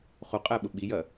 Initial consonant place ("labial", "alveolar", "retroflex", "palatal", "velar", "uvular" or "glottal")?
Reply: uvular